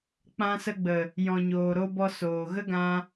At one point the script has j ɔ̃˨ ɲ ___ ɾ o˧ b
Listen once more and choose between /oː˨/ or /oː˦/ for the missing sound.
oː˨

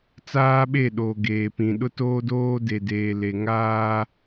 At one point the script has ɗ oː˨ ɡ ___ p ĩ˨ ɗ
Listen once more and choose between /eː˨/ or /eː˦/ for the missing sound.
eː˨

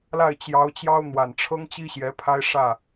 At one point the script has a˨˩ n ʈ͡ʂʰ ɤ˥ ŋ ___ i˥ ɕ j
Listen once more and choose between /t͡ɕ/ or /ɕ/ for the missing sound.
t͡ɕ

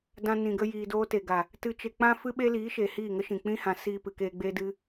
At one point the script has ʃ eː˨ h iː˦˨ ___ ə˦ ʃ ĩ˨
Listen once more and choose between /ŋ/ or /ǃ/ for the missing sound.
ŋ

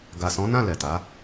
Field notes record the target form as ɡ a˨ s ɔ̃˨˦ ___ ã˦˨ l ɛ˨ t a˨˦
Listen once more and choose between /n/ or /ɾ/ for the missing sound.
n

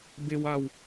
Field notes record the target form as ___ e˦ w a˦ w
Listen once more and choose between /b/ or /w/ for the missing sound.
b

